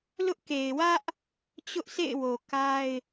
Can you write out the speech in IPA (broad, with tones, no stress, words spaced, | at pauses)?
lʊ˦ʔke˨ɪ̯ wä˦ʔ | t͡ɕʊ˦ʔsḛ˦˨ɪ̯ wo˨ka˦ɪ̯